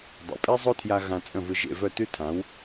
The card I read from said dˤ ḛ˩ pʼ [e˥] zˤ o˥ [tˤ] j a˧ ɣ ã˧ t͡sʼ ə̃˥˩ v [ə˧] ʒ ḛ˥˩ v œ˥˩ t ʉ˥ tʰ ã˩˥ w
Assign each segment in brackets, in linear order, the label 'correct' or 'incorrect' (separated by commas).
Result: correct, incorrect, incorrect